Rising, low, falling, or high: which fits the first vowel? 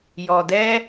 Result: low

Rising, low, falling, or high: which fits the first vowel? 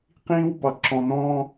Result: high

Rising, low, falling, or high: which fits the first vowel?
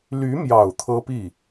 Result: rising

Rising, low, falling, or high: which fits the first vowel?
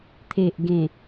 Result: low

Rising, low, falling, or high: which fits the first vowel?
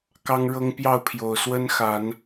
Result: high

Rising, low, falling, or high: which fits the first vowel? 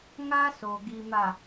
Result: high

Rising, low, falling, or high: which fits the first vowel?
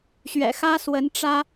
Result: low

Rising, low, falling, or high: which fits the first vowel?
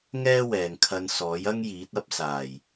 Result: high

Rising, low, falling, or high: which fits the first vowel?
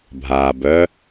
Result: low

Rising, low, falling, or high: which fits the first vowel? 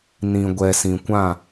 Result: low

